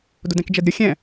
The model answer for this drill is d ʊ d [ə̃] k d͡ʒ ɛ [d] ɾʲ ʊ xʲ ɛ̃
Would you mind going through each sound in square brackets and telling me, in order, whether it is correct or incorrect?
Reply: incorrect: ɛ̃, correct

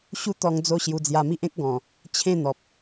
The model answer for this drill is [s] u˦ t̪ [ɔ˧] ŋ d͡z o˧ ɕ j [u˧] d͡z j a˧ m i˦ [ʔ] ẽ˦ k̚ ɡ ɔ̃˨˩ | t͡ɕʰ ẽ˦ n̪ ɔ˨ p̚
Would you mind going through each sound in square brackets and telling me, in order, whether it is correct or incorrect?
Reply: incorrect: ɕ, correct, correct, correct

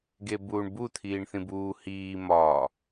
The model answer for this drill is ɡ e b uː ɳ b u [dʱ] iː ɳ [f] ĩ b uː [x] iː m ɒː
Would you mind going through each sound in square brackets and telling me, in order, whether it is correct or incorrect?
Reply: incorrect: t̪ʰ, incorrect: θ, incorrect: h

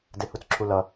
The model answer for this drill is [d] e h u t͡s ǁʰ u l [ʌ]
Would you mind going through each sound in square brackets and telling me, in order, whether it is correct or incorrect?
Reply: correct, correct

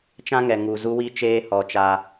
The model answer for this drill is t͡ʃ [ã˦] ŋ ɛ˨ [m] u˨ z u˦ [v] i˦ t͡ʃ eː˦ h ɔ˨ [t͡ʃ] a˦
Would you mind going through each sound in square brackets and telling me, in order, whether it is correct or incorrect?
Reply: correct, incorrect: ŋ, incorrect: w, correct

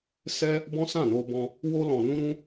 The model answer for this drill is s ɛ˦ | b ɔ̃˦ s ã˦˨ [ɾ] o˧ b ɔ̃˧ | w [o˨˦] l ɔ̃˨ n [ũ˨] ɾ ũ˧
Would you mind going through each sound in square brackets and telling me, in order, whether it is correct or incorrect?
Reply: incorrect: n, incorrect: o˧, incorrect: ũ˧

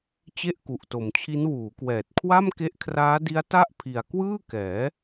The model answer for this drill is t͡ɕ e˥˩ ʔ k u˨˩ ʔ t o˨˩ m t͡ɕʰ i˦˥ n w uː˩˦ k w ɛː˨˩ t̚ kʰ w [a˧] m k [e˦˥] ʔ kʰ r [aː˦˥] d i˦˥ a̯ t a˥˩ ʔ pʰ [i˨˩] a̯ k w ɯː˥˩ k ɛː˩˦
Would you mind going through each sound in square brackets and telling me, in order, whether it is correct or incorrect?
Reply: incorrect: a˥˩, correct, correct, correct

